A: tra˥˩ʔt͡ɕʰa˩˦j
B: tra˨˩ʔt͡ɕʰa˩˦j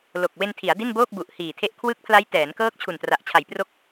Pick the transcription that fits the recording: B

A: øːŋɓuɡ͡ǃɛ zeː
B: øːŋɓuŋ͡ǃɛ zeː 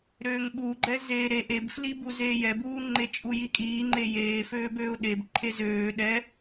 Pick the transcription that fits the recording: A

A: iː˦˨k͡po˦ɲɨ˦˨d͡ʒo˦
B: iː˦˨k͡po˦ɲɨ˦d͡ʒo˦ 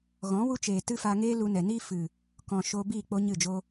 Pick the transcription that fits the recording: A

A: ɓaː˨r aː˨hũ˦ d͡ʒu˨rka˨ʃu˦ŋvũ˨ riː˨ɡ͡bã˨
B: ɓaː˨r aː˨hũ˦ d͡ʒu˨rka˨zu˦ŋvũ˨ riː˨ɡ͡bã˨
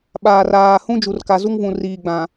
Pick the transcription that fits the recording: B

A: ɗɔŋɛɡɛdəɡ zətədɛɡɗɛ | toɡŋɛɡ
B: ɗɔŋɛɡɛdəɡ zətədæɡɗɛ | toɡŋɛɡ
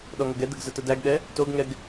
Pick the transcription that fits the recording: B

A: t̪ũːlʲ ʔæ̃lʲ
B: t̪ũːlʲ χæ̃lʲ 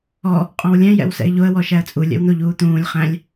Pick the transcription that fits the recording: B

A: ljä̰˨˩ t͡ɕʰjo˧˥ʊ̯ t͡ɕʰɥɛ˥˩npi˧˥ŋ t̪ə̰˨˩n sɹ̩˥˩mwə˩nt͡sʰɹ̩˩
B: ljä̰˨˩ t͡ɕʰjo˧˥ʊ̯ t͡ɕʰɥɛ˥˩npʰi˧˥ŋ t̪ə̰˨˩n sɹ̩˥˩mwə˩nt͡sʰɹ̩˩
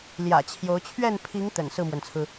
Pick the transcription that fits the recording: B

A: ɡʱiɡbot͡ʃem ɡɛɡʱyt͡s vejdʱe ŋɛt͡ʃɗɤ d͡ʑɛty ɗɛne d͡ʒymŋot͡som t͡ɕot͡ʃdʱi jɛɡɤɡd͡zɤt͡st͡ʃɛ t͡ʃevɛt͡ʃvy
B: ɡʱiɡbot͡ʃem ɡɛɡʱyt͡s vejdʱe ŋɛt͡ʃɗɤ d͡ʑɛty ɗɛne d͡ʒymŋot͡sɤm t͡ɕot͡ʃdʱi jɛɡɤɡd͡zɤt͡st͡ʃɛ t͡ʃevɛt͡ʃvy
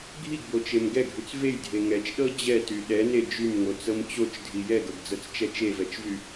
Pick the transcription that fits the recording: B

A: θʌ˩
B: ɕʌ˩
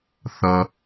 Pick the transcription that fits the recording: A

